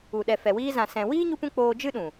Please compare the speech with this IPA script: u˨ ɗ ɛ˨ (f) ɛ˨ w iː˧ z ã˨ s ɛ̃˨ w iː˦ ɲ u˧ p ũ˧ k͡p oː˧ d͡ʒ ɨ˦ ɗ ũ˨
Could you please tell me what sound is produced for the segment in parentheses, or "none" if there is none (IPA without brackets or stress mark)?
f